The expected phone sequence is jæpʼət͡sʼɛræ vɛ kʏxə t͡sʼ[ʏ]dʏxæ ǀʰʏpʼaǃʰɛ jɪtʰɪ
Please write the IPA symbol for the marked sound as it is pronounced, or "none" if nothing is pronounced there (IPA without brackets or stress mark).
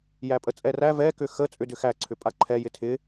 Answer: ʏ